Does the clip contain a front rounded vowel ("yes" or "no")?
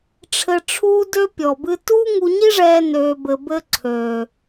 yes